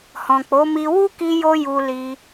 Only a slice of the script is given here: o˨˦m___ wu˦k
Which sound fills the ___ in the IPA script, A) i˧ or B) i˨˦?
A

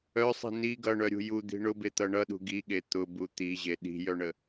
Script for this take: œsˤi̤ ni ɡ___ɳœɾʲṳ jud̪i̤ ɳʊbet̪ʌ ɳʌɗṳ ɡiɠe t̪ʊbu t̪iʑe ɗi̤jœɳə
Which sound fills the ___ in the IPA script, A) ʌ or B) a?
A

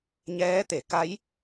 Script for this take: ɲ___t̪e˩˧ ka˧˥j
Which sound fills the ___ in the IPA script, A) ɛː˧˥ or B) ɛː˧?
A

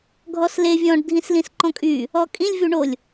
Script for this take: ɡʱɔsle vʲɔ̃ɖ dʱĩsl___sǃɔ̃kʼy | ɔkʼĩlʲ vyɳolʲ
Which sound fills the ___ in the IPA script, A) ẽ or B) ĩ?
B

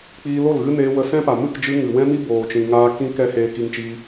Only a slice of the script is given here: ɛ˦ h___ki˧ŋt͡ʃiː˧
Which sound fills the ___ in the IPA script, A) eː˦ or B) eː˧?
B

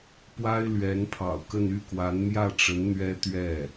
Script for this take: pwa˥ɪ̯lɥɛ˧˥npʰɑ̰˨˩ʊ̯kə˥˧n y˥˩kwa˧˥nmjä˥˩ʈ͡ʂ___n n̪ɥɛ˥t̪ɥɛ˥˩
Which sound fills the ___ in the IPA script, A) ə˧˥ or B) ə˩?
A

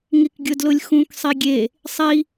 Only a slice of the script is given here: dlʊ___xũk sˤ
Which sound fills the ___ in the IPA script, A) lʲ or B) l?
A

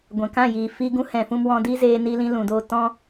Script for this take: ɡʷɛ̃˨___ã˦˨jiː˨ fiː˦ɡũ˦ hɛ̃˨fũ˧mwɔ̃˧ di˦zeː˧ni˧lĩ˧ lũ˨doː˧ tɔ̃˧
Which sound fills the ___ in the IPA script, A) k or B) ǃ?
A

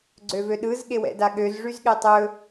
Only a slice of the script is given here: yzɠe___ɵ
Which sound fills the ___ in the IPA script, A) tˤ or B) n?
A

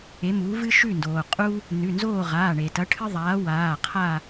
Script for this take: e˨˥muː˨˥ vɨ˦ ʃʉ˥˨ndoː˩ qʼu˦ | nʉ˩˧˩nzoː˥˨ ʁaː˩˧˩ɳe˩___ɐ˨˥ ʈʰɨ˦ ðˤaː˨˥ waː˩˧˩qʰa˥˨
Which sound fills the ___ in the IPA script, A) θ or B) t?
B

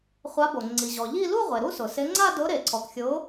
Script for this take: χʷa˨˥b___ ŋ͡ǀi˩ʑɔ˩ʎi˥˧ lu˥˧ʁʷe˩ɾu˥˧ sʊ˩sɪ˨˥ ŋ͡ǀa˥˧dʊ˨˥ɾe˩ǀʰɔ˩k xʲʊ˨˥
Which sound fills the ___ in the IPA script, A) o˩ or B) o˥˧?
A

